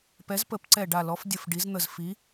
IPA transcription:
pɛ˨˥zpə˨˥p ǀɛ˧˩ɖa˧˩lɔ˨˥fdʲə˧˩f ɖi˨˥zn̪ə˧˩z fi˨˥

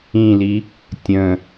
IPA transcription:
ĩli | tʲə̃

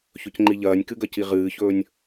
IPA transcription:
çɵcŋ͡ǃiʎɐːnʲkɨ ɡɐciʁɨːçɵːnʲ

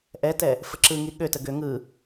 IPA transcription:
ʔɛtɛ | fəǁɯŋi ɠøtə ɡø ŋɯ

